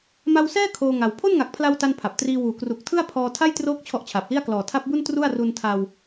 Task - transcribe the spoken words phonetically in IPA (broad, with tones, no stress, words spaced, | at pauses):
ma˧wsɛː˥˩ kʰoː˧ŋa˩˦w pʰo˥˩nŋa˨˩k̚pʰla˧w ta˥˩npʰa˨˩p̚ triː˧wuː˨˩ kru˨˩k̚tʰɯ˥˩a̯pʰɔː˧ tʰa˥˩jtroː˦˥k̚ t͡ɕʰɔ˦˥ʔt͡ɕʰaː˨˩p̚li˥˩a̯ klɔː˨˩tʰa˦˥p̚bu˥˩n tru˥˩a̯ ru˧ntʰa˧w